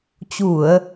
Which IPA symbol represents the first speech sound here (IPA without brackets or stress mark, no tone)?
t͡ɕ